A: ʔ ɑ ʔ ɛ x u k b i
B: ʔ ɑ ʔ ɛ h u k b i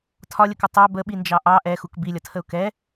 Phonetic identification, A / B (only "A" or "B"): A